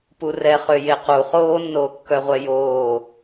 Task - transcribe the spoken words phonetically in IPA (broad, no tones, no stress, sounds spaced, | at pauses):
p u r ɛ χ ø j e q u χ oː nː oː kː œ ʁʷ ɛ j oː